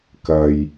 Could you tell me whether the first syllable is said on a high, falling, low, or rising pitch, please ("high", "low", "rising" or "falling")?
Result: low